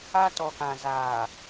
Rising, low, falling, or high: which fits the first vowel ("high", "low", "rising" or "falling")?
high